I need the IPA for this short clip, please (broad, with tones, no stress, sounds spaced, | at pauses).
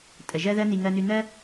tʼ ə˩ ʒ ɜ˥ ð ɜ˥ n i˧ ŋ ɜ˧ n ʉ˧ n̪ ɜ˥